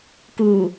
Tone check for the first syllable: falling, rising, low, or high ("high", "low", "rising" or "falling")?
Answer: low